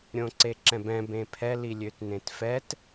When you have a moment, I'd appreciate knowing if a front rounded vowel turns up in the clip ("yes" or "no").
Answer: yes